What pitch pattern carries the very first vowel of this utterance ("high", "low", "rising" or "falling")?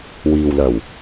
low